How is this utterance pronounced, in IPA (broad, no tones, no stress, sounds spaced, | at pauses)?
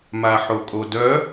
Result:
m a ħ o kʼ o d œ